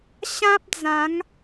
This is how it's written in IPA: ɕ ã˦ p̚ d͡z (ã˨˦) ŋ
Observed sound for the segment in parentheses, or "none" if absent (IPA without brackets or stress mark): ã˨˦